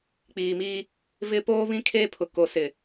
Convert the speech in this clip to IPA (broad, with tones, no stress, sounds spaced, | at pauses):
k͡p iː˨ m iː˦ | v ɪ˦ p oː˦ β ĩ˦ kʰ eː˦ pʰ ʊ˨ k o˨ s ɪ˨